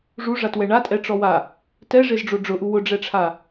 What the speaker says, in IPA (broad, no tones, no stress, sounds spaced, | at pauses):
ʐ u ʐ a t w ɛ ɳ a tʼ ɛ ʈ͡ʂ ɔ w a | t ɛ ʐ e z ɖ͡ʐ o ɖ͡ʐ ʊ ʔ u w ʊ ɖ͡ʐ ɛ ʈ͡ʂʰ a